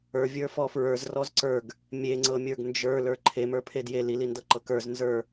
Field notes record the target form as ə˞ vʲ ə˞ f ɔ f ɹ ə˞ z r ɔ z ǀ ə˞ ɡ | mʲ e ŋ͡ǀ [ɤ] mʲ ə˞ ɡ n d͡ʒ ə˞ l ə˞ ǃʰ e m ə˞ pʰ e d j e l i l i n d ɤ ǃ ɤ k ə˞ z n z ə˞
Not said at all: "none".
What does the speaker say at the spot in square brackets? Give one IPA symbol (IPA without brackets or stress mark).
ɤ